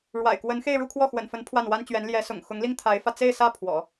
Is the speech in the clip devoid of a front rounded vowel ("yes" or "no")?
yes